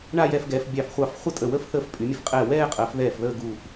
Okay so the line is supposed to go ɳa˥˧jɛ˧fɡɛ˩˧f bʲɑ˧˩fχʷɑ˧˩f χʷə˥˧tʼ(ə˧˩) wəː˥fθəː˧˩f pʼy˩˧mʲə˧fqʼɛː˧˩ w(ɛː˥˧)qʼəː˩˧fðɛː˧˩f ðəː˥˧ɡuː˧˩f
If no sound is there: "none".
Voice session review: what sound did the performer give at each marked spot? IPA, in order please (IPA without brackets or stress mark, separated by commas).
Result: ə˧˩, ɛː˥˧